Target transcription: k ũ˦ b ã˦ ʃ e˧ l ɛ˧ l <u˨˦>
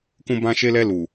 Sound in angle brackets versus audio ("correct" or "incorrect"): incorrect